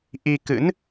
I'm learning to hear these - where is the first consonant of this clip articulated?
throat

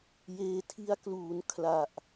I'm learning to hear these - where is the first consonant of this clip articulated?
palate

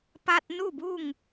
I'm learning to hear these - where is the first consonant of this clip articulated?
lips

